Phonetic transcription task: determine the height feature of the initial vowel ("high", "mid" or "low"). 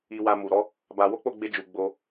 high